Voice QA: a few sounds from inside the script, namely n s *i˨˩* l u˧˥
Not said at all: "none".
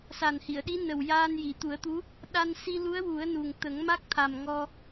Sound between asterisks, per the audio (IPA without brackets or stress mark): i˧